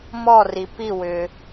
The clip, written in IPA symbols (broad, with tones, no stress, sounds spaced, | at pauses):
m ɔ˥˨ r i˨ p i˥˨ w ʏ˨